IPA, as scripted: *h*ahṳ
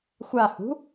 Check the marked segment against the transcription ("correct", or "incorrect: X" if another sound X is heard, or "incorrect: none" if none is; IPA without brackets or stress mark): incorrect: xʷ